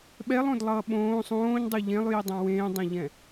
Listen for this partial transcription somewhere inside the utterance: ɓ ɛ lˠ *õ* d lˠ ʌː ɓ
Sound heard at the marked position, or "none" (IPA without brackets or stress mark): õ